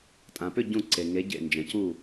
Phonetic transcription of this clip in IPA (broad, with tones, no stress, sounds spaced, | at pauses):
tʼ ã˩ p ʏ˥˨ ɟ ũ˧˩ ǀ e˩ ŋ e˨˦ ɟ ḛ˧˩ n d͡ʒ ə̃˩ c u˧˩